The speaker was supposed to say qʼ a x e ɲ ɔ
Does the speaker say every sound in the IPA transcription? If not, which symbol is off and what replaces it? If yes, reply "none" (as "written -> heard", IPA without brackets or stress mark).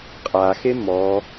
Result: ɲ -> m